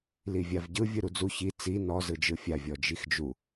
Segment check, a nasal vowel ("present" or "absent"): absent